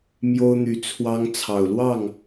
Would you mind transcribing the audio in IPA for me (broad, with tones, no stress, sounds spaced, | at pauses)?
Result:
m j o˦ ʊ̯ n̪ y˨˦ t͡sʰ w ɑ˦ ŋ t͡sʰ ɑ˨˩ ʊ̯ l w ɑ˥˨ ŋ